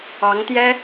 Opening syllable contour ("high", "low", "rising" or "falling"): rising